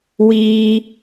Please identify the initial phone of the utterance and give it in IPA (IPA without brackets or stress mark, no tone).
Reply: w